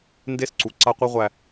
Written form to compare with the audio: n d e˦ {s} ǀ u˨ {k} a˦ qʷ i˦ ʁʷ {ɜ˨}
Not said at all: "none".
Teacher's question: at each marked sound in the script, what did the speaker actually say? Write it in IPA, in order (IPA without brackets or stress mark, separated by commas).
s, ǀ, æ˨